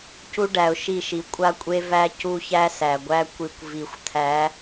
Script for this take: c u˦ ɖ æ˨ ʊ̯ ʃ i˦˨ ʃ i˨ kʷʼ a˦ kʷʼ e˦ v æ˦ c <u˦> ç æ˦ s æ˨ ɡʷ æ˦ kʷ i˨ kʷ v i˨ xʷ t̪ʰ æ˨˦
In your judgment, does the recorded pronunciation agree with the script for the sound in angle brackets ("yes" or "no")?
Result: yes